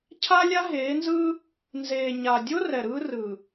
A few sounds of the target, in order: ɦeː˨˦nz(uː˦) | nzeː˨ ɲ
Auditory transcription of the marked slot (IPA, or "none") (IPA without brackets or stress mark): ɯː˦